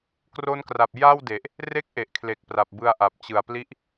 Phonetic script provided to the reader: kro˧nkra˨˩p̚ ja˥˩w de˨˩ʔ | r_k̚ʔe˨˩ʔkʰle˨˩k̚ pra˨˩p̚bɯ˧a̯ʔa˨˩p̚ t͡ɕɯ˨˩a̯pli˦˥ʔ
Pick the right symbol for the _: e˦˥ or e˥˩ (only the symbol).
e˥˩